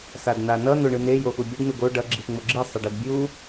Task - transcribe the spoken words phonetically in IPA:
s a d n̪ a n ʌ n̪ o ɳ ɯ n e j o x u bʲ u ɖ n̪ u ɡ o ɖ ʌ ɡ͡ǁ i x ŋ͡m o ɡ͡ǁ i sˤ ʌ ɖ ɛ d bʲ u

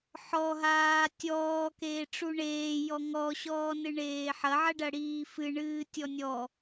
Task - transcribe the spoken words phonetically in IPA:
ħ ɔ ɦ aː tʲ ɔː k eː ʈ͡ʂ u ɳ eː j ɔ ŋ ɔ ɕ ɔː n ɨ ɳ eː ħ ɐ ʕ ɐ ɖ ɐ ɽ iː f ɨ ɳ ɨː tʲ ɔ nʲ ɔ

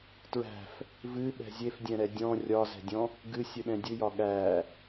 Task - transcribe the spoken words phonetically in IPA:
t ɹ æ̤ f | v ɨ ɓ ɛ̤ zʲ e f dʲ ɛ̃ ɾ ɛ dʲ ɔ̃ rʲ ɒ z ɛ̤ dʲ ɔ̃ | ɡ ɨ sʲ ɨ ɗ ɛ̃ dʲ ɨ j ɒ ɠ æ

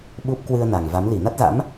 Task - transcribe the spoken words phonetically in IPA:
ɓ u˦˥ p̚ k w ɨ˧ ə̯ n a˨˩ ŋ v a˨˦ m l i˧˩ n a˦˥ t̚ z a̰˧˥ m

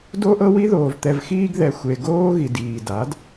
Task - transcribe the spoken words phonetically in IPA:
d o˦ ʔ ɤ˦ w i˦ ð oː˨ v t̪ ɛ˨ v x iː˧ ɡ ð ɛ˨ xʷ e˨ ɡ oː˦ ɣ i˨ d iː˨ d a˨˦ d

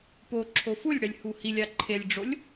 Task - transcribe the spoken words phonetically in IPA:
p o ǁʰ o f u lʲ ɽ ɛ lʲ h u h i lʲ a ǃʰ e lʲ ɖ͡ʐ o lʲ

